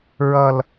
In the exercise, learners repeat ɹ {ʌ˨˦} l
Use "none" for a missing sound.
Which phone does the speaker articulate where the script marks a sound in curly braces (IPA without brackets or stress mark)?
ʌ˦